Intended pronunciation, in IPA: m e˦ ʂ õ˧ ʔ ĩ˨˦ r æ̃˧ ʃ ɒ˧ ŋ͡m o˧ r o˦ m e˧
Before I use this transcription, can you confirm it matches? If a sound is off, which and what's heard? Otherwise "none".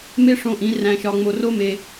none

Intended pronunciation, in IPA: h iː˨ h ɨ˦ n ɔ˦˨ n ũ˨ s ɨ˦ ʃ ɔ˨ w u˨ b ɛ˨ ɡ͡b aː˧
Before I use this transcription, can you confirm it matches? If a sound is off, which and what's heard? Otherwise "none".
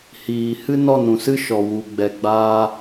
b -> ɡ͡b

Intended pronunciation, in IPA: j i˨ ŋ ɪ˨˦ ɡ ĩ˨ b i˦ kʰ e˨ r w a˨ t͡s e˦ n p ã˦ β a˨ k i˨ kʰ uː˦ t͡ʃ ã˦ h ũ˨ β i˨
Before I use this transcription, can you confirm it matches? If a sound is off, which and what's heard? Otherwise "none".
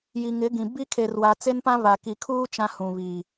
none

